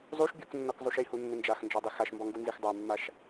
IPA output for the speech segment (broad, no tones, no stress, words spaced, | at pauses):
zˤuʃ bʲuknːɔkzˤuʃ ihunːɪ nd͡ʒaxnd͡ʒɔdˤi xaʃmbɔŋɡunzix dˤamːaʃ